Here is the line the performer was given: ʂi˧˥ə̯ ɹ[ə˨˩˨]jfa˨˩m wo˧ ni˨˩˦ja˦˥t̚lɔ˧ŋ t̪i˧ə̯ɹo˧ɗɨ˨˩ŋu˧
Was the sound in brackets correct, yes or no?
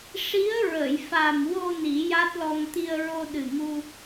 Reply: yes